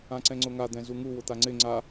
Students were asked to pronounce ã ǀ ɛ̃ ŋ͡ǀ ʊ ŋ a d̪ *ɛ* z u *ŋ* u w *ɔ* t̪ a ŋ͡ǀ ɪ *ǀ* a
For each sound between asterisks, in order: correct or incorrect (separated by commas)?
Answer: incorrect, correct, incorrect, incorrect